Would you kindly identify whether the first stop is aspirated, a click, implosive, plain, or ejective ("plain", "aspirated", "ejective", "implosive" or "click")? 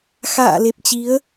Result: plain